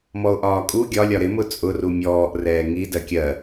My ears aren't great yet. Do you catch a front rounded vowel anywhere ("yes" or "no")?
no